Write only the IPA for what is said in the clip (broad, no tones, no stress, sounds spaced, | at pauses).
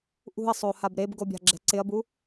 ʔ ṳ ɐ̯ sˤ o h a b ɾ e b ɡ o bʲ a̤ ɡ͡ǁ ɛ̤ ǀ ɪ ɐ̯ b u